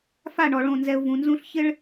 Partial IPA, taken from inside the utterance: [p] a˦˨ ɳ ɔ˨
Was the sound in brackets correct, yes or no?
no